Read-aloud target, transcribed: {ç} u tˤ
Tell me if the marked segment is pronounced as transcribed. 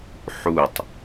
no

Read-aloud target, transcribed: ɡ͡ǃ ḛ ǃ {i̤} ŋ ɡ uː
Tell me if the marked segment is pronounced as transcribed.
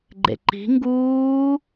yes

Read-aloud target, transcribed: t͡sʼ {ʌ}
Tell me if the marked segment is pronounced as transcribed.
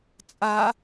no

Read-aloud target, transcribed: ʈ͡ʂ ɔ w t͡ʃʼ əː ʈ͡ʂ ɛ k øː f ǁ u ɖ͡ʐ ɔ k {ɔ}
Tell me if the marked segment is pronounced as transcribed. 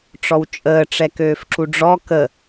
no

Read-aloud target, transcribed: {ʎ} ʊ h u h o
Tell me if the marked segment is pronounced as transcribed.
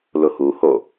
no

